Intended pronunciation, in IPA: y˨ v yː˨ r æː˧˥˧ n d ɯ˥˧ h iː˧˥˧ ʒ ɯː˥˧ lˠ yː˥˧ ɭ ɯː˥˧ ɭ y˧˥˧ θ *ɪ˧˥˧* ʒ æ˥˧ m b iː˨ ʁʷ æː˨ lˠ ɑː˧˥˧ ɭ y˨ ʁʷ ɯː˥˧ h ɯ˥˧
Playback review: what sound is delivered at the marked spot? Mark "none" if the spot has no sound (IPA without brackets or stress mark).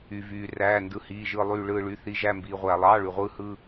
i˧˥˧